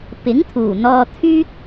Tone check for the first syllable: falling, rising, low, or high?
rising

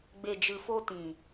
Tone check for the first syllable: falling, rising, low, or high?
low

